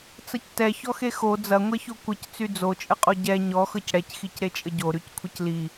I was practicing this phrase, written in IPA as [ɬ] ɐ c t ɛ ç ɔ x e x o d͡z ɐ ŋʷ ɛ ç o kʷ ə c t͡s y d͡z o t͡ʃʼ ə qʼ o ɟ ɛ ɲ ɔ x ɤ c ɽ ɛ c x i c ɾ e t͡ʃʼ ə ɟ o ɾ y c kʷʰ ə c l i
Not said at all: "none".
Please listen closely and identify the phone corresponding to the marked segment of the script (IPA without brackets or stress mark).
t͡s